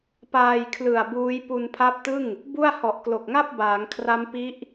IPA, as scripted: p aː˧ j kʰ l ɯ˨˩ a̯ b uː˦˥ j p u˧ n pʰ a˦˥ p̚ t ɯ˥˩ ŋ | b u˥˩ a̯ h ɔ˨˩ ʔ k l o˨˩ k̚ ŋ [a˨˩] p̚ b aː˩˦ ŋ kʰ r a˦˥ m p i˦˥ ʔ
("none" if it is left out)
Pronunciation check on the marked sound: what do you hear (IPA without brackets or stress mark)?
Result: a˥˩